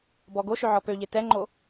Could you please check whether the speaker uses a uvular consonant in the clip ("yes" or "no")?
no